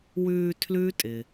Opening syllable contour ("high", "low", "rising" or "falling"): low